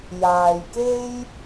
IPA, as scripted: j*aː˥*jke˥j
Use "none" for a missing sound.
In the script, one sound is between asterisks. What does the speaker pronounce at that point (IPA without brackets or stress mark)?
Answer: aː˨